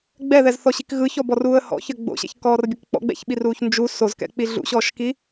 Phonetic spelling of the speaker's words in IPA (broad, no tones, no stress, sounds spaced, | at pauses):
ɡ͡b ɛ ð ɛ z θ ɔ ɕ i k ɣ ɯ ç ɔ b ɔ r uː ə̯ h ɔ̰ ç ɘ ɡ͡b o̰ ɕ ɛ̰ ç k ɔː r bʲ ɘ k k͡p ɔ̰ ɡ͡b ɛ̰ ç ɓ i r uː ç n d͡ʒ u s o z k ɛ̰ k͡p i ɮ ṵ ɕ ɔː ʃ k i